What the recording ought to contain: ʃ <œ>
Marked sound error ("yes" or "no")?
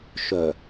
no